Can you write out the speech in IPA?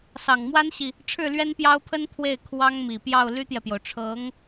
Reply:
s ɑ˨˩ ŋ m w a˥ n ɕ i˨ | ʈ͡ʂʰ ɻ̩˥˩ l ɥ ɛ˥ n p j ɑ˥ ʊ̯ pʰ ə˥ n t̪ʰ w e˥˩ ɪ̯ kʰ w ɑ˥ ŋ m i˨˩ p j ɑ˥˩ ʊ̯ l y˥ t̪ j ɛ˨ p j o˩ ʊ̯ ʈ͡ʂʰ ɤ˧˥ ŋ

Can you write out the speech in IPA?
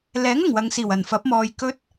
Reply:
l ɛː˨˥ ŋ ɐ˨˩ ŋ w ɐ˨ ŋ s iː˨˩ w ɐ˨˩ n f ɐ˨˥ p̚ m ɔː˨˧ j k ɵ˥ t̚

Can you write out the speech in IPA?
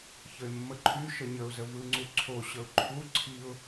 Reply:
ç ə ɪ̯ mː ə ǃʰ y ʃ ə ɲ ə ʊ̯ z ə v ɯ ŋ͡ǀ u ǀʰ o ɕ ə ʊ̯ ǃʰ u ǀʰ i ʊ̯

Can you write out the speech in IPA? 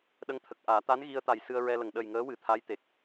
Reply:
ɗ ə˧˥ ŋ t̪ʰ ə˨˩ k̚ ʔ aː˨˩˦ t̪ a˧˥ n ɣ i˧ ə̯ t̪ a˨˩ j s ɨ˧ ə̯ ɹ ɛ˧ l ə˨˩ ŋ ɗ ə˨˩ j ŋ əː˧˥ w ɨ˨˩˦ t̪ʰ a˧˥ j t̪ e˨˩ k̚

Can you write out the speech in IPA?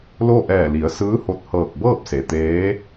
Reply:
l o˥˨ ʔ ɛː˧˩ l i˩˧ ə̯ s ɯː˧˥ h o˧˩ t̚ h ɤː˧˩ k̚ b ɤː˥˨ p̚ s e˩ t̪ eː˧˥

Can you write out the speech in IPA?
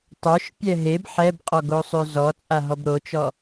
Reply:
tˤ o ʃ pʲ ɛ ɦ e b ħ ɛ b qʼ ɔ ɡ o sˤ ø z ɔ t͡sʼ a ɦ ɔ b ɾ o t͡ʃ ɔ

